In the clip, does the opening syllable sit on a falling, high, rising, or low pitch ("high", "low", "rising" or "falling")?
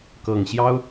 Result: low